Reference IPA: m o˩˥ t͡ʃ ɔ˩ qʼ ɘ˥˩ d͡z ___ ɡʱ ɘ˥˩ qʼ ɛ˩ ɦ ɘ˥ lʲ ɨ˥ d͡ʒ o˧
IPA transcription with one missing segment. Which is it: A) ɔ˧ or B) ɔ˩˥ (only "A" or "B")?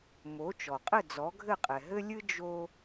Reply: B